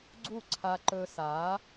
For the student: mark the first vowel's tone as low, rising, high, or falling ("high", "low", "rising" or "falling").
falling